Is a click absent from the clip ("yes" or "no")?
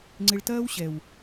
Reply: no